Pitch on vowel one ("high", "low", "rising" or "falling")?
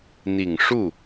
low